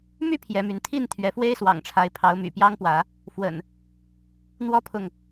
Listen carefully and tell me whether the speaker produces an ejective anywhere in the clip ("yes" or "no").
no